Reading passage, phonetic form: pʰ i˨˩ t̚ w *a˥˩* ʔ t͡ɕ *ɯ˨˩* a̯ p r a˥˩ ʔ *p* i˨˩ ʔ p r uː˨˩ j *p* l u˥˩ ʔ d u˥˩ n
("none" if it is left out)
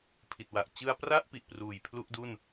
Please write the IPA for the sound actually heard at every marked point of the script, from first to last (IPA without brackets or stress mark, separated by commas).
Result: a˨˩, ɯ˧, p, pʰ